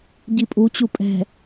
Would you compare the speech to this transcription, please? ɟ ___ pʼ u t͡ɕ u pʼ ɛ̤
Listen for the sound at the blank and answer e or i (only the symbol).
i